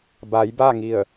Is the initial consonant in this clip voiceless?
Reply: no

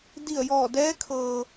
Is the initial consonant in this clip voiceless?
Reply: no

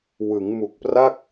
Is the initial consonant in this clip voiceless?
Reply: no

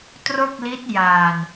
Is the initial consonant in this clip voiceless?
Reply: yes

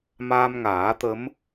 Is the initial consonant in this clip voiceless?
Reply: no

